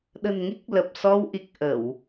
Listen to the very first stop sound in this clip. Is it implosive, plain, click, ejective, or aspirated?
implosive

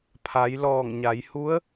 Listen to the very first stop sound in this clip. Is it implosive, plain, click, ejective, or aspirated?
aspirated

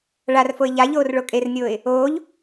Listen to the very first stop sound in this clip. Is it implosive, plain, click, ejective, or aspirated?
ejective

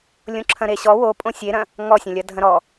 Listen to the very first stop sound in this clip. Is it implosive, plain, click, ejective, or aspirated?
click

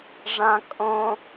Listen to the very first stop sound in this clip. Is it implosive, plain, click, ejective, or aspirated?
ejective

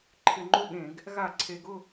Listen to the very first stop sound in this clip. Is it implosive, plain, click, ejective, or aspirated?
click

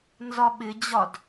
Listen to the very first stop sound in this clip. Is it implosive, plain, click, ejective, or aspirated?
implosive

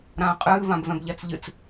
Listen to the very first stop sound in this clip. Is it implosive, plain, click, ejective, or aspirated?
ejective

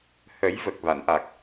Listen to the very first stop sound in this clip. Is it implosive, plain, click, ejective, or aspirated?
plain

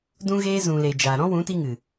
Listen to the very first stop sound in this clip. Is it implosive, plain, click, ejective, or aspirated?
plain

